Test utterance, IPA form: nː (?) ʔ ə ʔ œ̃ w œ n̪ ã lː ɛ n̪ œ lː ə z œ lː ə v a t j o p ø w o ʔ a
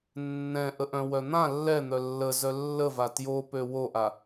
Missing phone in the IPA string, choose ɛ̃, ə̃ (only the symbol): ɛ̃